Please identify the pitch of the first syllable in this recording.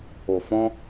low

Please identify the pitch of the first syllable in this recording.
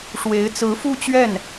rising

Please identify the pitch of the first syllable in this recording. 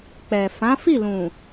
low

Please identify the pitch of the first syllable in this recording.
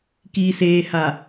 low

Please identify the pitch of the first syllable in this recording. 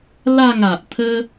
falling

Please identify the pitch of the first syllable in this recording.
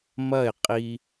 falling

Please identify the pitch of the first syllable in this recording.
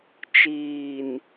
low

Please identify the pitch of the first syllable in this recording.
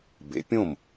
rising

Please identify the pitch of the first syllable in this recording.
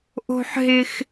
high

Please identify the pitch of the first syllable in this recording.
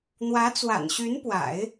rising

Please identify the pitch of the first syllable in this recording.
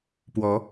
rising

